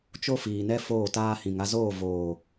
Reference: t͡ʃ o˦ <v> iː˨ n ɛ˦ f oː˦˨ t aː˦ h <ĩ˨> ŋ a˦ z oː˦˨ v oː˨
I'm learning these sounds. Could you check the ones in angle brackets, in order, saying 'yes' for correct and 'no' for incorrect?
no, yes

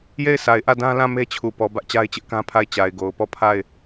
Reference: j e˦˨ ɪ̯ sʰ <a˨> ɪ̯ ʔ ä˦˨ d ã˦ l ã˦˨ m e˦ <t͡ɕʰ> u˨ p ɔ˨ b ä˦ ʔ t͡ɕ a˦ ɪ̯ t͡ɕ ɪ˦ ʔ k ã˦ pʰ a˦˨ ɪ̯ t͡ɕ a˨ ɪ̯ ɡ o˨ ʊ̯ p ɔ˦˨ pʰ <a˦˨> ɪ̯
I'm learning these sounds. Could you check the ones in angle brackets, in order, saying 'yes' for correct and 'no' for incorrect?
yes, yes, yes

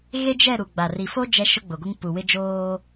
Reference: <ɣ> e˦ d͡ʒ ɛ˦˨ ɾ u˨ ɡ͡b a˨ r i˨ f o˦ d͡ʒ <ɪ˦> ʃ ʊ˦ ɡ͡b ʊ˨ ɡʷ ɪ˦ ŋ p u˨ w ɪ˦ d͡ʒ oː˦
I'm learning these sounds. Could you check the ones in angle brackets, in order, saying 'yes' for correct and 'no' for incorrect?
yes, no

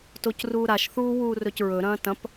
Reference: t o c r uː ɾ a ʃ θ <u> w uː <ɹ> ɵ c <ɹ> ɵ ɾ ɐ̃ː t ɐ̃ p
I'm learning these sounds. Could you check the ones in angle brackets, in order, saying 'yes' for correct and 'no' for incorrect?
no, no, yes

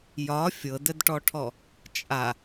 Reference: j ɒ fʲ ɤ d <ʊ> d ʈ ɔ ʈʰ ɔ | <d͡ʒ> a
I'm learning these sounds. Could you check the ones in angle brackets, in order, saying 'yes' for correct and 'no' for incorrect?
no, no

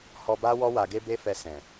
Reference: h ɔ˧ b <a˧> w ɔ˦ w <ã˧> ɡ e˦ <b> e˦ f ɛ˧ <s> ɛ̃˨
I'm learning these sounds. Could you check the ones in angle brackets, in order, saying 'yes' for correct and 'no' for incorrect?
no, no, yes, yes

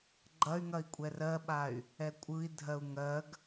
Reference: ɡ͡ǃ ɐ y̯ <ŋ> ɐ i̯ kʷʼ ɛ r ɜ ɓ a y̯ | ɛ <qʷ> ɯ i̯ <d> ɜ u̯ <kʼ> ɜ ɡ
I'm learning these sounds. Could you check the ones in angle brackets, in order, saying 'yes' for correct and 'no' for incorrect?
yes, no, no, no

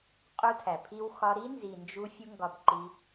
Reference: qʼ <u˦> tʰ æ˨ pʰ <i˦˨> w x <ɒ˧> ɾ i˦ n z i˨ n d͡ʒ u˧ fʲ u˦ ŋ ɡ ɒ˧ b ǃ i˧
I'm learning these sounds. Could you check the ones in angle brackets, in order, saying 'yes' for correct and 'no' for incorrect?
yes, no, yes

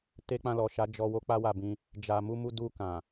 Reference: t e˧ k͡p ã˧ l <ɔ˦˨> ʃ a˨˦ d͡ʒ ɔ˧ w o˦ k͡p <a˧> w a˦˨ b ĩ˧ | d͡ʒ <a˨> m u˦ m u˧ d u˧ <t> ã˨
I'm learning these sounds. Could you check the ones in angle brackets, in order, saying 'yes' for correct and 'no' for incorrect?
no, no, no, no

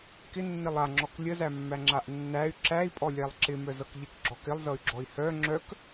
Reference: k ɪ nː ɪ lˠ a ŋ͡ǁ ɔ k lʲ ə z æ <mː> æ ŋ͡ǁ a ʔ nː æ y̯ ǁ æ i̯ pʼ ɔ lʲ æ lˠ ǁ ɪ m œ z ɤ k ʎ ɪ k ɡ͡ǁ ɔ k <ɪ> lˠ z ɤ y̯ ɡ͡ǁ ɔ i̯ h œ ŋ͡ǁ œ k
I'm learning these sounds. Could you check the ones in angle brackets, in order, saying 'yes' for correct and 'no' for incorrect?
yes, yes

